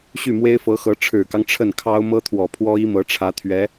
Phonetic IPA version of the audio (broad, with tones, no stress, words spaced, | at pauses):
ɕy˥˩mwe˥ɪ̯fɤ˧˥xɤ˧˥ ʈ͡ʂʰɻ̩˨˩kɑ˦ŋ ʈ͡ʂʰə˥˩nkʰɑ˥ʊ̯ mɤ˥t̪ʰwɔ˨˩pʰwɔ˥ i˥mɤ˧˥ʈ͡ʂʰä˧˥t̪ʰɥɛ˧˥